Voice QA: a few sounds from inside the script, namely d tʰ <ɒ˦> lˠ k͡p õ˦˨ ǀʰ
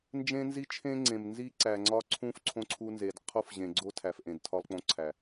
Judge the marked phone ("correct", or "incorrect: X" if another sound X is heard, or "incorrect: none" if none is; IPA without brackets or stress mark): correct